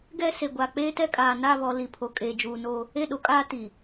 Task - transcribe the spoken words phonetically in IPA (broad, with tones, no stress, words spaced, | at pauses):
ɡɛ˦se˨ɡʷa˨ k͡peː˦tɛ˦kʼaː˨ na˦˨βɔ˨ li˨pʰo˨ kʼeː˨d͡ʒuː˨no˦ | e˦˨ɗo˨kʼaː˦ti˨